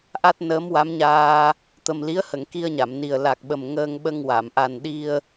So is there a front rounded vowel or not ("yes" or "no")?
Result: no